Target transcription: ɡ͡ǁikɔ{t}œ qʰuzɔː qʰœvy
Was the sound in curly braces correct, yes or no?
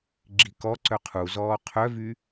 no